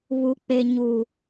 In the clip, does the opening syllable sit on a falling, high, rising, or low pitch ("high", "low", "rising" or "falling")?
low